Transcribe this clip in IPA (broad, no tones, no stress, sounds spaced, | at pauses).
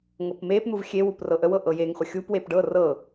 ŋ ɤ p m e p n̪ u v xʲ e w u p r ɤ ʔ ə w ɤ ʔ ɤ j e ŋ χʷ ə xʲ u p w e p ɖ ɤ r ɤ